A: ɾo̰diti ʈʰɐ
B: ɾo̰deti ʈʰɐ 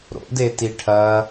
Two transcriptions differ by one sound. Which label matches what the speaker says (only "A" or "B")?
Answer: B